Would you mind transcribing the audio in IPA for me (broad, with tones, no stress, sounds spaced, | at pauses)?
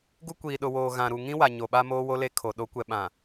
ɡ u˦ kʷ iː˨ ɗ ʊ˨ w oː˨ ɣ ã˨ ɾ u˨ ŋ ĩ˦ w a˨ ɲ o˨ ɓ a˦ m oː˦ w o˦ l e˦ kʰ o˨ ɗ o˨˦ kʷ ɛ˨ ɓ ã˨